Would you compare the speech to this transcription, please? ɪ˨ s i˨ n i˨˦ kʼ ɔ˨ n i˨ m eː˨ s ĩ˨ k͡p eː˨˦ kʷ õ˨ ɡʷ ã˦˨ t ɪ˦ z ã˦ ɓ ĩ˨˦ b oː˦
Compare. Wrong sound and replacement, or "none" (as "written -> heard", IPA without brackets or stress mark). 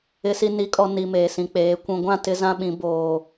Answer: õ˨ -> ũ˨